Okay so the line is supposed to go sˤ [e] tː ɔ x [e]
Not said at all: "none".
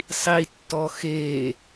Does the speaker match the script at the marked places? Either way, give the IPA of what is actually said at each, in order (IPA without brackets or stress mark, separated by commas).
i, e